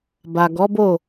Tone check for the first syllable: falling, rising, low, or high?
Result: low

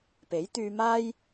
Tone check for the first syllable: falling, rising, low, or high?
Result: rising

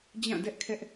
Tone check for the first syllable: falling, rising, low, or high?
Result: falling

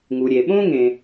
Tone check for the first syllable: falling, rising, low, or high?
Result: low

